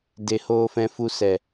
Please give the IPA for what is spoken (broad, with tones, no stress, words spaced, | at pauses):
de˨˦hoː˧fɛ̃˧ fu˧ sɛ˨